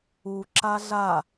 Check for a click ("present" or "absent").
present